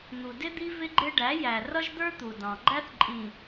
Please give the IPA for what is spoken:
n̪ u˨ d ɪ˦ d̪ i˦ v ɪ˦ ɡ͡ǃ ɪ˦ ɖ æ˨˦ j æ˨ r ʌ˦ ʒ d̪ ə˞˦ t̪ u˨ d ɑ̃˨ ɡ͡ǃ æ˦ θ ǃʼ ĩ˨

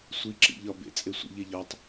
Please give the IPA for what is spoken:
sʷ i ǁ ḭ ʎ ɒ b ḛ t͡sʼ e sʷ ə̰ ʎ e ʎ ɒ tˤ

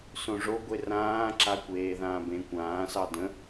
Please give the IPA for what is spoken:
s õ ʐ o ɡʷ e r ãː ǁ a kʷ eː ð ãː b ẽ kʷ ãː s ɑ d ə̃

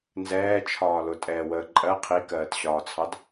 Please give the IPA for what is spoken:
n z ɛː t͡ʃʰ ɒː l ʊ tʼ ɛː w əː ǃʼ ɜ qʰ i k ɜː t ɕ ɒː t͡sʰ ɑ d

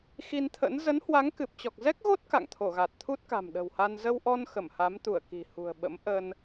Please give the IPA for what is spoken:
x i˧ n t̪ʰ ə̰˧˥ n z ə˨˦ n h w a˨˦ ŋ k ɨ˨˩ p̚ t͡ɕ ɔ˨˩ k̚ z ɛ˦˥ k̚ ɣ o˦˥ t̚ k a̰˧˨ ŋ t̪ʰ o˧˩ ɣ a˨˩ t̚ t̪ʰ u˦˥ t̚ k a̤˨˩ m ɗ ə̤˨˩ w h a˧ n z ə˧ w ʔ ɔ˧ n x ə˧˩ m h a˨˦ m t̪ u˧˩ ə̯ k i̤˨˩ h ṳ˨˩ ə̯ ɓ ə̰˧˥ m ʔ ə˧ n

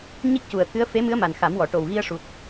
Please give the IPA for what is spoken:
ɲ i˦˥ k̚ c u˨˩ ə̯ t̪ʰ ɨ˧˥ ə̯ f e˧˥ m ɨ˧˥ ə̯ m a˨˩ n x a˨˩˦ m w ɔ˨˩˨ ʈ o˨˩ w ɣ i˧ ə̯ ʂ u˨˩ t̚

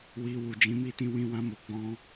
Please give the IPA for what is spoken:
w i˧ w u˨ d͡ʒ ĩ˨˦ m i˦˨ t ĩ˧ w ĩ˧ w ã˧ m o˨ ɡ͡b ɔ̃˧

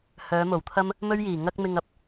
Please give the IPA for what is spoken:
h œː˨˧ m o˨˩ w t̪ʰ ɐ˥ m | m ɵ˥ ɥ j iː˨˩ ŋ ɐ˥ k̚ m ɪ˧ ŋ ɐ˨˥ p̚

